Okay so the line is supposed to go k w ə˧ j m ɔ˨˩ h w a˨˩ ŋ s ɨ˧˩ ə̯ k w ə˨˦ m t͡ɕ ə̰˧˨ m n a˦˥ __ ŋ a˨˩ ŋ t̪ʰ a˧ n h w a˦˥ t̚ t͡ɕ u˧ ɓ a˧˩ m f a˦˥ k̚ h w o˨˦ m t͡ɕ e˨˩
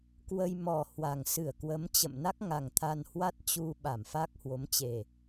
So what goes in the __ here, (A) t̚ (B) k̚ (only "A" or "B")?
B